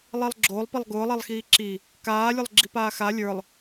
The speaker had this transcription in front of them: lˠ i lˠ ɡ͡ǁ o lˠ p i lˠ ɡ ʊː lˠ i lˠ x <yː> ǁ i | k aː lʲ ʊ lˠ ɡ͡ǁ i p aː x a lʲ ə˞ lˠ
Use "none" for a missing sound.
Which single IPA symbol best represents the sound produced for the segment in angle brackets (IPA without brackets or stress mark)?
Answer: iː